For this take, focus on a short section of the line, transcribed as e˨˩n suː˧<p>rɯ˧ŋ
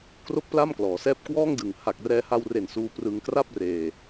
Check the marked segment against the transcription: correct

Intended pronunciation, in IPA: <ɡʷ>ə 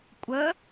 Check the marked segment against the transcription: incorrect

